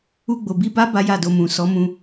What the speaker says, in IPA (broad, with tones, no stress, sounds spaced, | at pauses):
u˧ ɡ͡b o˨ b i˧ b a˦ b a˦ j a˦˨ d o˧ m ũ˨ s ɔ˨˦ m ũ˧